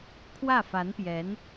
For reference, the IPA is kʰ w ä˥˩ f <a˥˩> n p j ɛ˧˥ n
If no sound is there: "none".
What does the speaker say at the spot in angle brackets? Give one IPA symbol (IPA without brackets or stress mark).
a˧˥